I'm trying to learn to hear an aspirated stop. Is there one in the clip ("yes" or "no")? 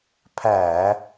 yes